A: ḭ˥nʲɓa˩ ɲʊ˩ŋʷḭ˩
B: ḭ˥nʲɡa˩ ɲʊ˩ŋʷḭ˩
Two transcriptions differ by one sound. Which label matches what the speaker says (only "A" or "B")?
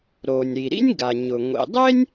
B